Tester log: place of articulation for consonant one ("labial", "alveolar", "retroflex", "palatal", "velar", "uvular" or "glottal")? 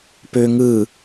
labial